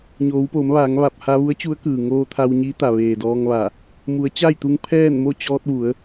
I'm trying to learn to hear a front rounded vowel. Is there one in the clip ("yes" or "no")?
no